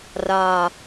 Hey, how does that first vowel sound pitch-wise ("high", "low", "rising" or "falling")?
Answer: low